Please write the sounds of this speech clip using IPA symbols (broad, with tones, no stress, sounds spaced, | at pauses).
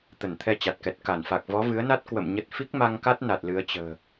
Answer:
t̪ ə˧˩ n t̪ʰ ɛ˧ t͡ɕ a˨˩ t̚ k ɛ˨˩ t̚ k a˧˩ n f a˨˩ k̚ v ɔ˨˦ v ɨ˨˦ ə̯ n a˦˥ t̚ k w ə̰˧˨ m ɲ ə˦˥ t̚ f i˦˥ k̚ m a˧ ŋ k a˦˥ t̚ n a˨˩ t̚ l ɨ˨˦ ə̯ t͡ɕ ə̤ː˨˩